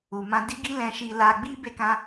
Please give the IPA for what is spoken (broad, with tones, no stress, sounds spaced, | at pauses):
u˨ m ã˧ d i˦ ɡ i˦ l ɛ̃˧ ʃ i˧ l a˧ ɡ͡b i˦ b e˧ k ã˧